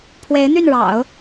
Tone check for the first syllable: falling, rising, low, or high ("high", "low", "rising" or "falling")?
rising